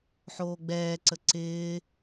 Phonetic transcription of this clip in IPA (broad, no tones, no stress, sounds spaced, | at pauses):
ħ oː ɡ͡b ɛː ǀ ə ǀ ɪː